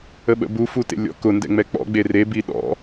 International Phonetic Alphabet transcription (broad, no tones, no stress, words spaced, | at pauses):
əɓə̰bu futḛlʲɔ̰kʊ ndɛ̰ŋ͡mɛk͡pɔ̰ ɡ͡bere biɗɔ̰